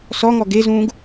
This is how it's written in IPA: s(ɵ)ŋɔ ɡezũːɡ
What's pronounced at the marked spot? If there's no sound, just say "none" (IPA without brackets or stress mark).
ɔ